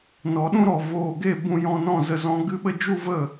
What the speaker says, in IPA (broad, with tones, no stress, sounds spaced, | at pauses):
n ɔ˨ ɗ ũ˦ ɾ ɔ˨ v oː˨ ɡ e˦˨ b ũ˧ j ɔ̃˧ n ɔ̃˦˨ z ə˦˨ z ɔ̃˦ ɡ ɨ˦ ɓ ə˦ d͡ʒ u˦ v ə˦˨